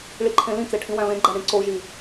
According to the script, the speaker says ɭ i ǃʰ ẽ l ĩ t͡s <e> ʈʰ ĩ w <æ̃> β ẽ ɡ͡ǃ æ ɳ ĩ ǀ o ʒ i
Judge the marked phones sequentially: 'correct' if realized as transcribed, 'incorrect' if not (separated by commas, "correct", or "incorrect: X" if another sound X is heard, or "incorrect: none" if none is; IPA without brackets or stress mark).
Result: correct, correct